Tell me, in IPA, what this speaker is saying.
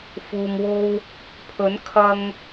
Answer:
fuː˨mwo˧w | pʰɵ˨˥nkʰɐ˧ŋ

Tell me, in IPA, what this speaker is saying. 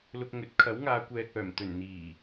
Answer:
lʊ˧k̚ŋɵ˨˥t̚ kʰɐ˨˥wŋaː˨˧kʷɛː˨k̚œː˨˩m t̪ɵ˨˩n n̪iː˨˩

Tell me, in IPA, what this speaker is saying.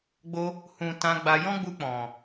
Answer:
ɡ͡bo˧ | hũ˨ tã˧ɡ͡ba˧ jɔ̃˦ɡ͡bu˧ k͡pɔ̃˨

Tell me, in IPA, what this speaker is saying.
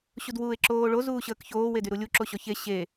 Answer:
ɕudwuːe̯ǁoːɭo zuːɕəːkçoː wedyɾulʲu ǁoɕɔçe ɕe

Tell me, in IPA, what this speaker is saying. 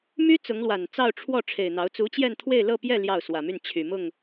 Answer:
my˥ t͡sʊ˧˥ŋlwa˨˩n t͡sɑ˥˧ʊ̯ʈ͡ʂʰwɔ˥˩ ʈ͡ʂʰe˨˩ɪ̯n̪ɑ˧˥ʊ̯ t͡su˧˥t͡ɕjɛ˥˧nt̪ʰwe˥˧ɪ̯ lɤ˥˧pjɛ˥˧ ljɑ˥˩ʊ̯swä˨˩my˥˩n t͡ɕʰy˨˩ mʊ˥˩ŋ

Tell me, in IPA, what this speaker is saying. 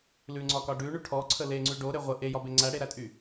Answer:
lʉŋ͡ǀɒkɒ ɖʉɳy ʈʰɔǀʰə leŋ͡ǀʉ ɖoɾe ʁʷə ʔejɒbe ŋ͡ǀæɽeɾætʼy

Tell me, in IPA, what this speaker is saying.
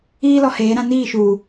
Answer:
iː˦ lɔ˨heː˨˦ɾã˦ niː˦˨ʃuː˨

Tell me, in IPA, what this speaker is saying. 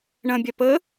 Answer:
ɳɐ̃bʲa pə

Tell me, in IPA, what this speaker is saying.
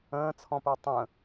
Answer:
ə̃ːt͡sʰɔ̃pə˞ tˤə̃

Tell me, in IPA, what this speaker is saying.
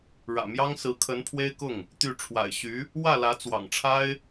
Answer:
ɻä̰˨˩mjɑ˥ŋsɹ̩˧˥kʰə˧˥n pʰwe˥ɪ̯kʊ˥˩ŋ | t̪y˥˩ ʈ͡ʂʰwa̰˨˩ɪ̯ɕy˧˥ | wä˥˩lä˧˥ t͡swɑ̰˨˩ŋʈ͡ʂʰa˥ɪ̯

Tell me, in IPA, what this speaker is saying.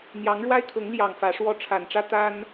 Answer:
n̪jɑ˧˥ŋɻwa˥ɪ̯kʰɤ˧˥ŋljɑ˨˩ŋ fä˧˥ʂwɔ˥˩ ʈ͡ʂʰa˨˩nʈ͡ʂä˥t̪a˥n

